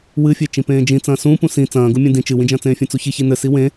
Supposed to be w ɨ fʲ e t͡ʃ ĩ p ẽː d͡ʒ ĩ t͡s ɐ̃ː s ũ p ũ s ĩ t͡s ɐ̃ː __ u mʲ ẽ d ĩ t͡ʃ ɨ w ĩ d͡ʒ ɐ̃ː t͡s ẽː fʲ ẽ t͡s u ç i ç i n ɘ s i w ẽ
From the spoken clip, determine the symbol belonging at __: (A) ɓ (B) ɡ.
B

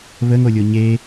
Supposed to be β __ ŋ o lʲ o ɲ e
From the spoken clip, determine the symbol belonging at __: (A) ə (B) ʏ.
A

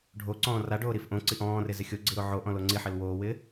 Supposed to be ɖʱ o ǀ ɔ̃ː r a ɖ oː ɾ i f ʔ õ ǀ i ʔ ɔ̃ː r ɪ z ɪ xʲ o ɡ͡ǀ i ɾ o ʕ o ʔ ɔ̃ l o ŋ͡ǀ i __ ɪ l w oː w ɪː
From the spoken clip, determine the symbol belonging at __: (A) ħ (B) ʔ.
A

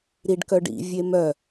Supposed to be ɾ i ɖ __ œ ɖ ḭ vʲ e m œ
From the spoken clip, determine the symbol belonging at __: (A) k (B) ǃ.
A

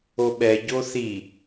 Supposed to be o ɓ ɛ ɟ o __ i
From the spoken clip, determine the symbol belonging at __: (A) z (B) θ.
B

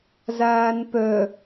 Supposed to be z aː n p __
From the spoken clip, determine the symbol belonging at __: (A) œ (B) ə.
A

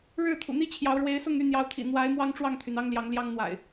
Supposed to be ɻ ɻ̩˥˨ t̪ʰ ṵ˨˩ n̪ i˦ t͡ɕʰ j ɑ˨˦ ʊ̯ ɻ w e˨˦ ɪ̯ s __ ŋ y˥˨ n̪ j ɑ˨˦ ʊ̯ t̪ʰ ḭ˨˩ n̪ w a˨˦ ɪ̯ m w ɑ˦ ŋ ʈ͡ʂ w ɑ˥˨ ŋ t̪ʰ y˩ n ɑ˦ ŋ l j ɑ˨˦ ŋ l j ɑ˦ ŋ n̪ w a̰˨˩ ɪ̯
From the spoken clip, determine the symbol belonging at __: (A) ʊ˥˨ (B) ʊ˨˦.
A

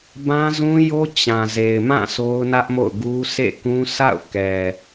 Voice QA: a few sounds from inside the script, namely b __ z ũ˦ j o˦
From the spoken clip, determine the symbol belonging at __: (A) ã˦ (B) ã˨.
A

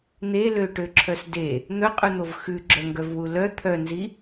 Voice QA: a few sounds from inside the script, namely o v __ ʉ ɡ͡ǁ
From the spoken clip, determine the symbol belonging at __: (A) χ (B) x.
B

